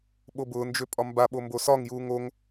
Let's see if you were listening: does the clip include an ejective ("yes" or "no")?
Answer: yes